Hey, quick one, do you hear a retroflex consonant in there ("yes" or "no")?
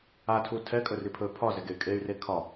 no